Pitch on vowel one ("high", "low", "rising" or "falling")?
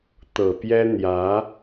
low